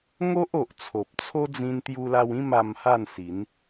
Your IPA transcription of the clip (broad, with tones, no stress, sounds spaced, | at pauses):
ŋ o˦ ʔ o˨ ʔ t͡sʰ o˨ p̚ t͡sʰ o˦ d͡z ĩ˧ n t̪ j u˧ l a˧ w ĩ˥˧ m a˧ m h a˥˧ n s i˨˦ n